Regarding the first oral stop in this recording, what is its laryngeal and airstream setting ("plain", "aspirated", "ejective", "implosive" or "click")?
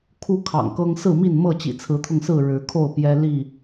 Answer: aspirated